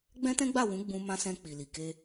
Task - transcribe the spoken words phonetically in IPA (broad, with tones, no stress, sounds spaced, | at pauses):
ɡ͡b ɛ̃˦ t ɛ̃˦ ɡ͡b a˦˨ w ũ˨˦ ɡ͡b ũ˧ m ã˧ s ɛ̃˧ k͡p i˨ l i˨ k e˧